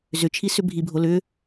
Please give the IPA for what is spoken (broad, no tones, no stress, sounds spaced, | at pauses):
z ʏ t͡ʃʰ i s ʏ bʱ i bʱ o l ʏ